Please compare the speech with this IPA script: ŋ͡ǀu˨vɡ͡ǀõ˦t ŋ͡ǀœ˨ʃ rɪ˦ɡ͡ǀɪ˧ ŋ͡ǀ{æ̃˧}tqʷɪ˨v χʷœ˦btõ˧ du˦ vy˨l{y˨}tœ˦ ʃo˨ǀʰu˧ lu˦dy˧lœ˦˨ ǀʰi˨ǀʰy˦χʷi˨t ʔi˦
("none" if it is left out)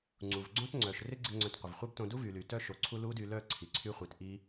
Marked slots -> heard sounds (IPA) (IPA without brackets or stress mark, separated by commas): œ̃˧, y˨